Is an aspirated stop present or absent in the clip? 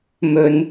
absent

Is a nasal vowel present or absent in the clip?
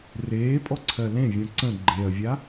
present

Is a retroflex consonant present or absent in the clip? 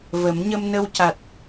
absent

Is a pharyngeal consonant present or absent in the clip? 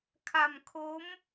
absent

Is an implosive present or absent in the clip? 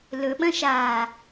present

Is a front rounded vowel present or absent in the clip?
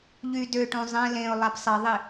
present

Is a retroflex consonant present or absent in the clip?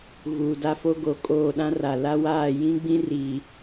absent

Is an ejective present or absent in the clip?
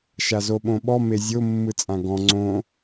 present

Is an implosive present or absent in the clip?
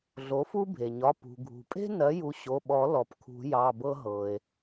present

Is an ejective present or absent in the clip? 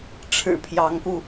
absent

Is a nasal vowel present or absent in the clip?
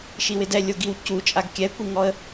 absent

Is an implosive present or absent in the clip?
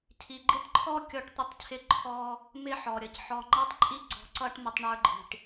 absent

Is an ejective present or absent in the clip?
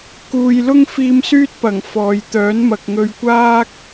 absent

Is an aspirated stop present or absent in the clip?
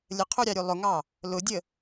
present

